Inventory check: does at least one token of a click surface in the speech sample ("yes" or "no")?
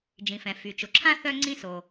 yes